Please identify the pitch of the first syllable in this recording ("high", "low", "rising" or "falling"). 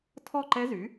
falling